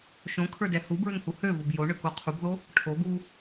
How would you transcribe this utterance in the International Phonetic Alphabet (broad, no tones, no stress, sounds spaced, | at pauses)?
ʃ õ kʰ ə˞ d ɛ h u b ɹ ø ŋ h u h ø v o b j o ɳ ø k o qʰ u b ð o | ʈʰ o ɡ u